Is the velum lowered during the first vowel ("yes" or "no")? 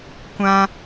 yes